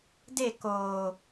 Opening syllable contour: falling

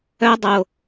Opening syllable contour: high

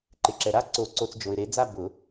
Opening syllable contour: low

